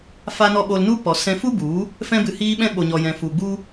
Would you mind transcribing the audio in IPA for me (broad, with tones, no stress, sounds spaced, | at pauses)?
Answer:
f a˦ n ɔ˦ ɓ o˧ l n u˦ p ɔ˨ s ɛ̃˧ f u˦ b u˨˦ | f ɛ̃˧ b ɨ˨ h iː˧ ɓ ɛ̃˧ ɓ o˨ ɲ ɔ˨ j ɛ̃˨ f u˨ ɡ͡b u˦